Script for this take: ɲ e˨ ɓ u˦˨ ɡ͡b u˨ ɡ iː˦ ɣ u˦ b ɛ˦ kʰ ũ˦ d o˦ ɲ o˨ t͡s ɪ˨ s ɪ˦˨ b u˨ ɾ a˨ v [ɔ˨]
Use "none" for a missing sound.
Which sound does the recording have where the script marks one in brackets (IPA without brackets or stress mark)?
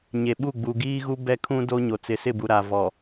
ɔ˨